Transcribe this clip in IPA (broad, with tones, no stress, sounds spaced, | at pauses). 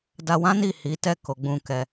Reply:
d a˧ w ã˦ n i˦˨ h i˨˦ t ɛ˦˨ k o˨˦ ɡ͡b ũ˦˨ k ɛ˧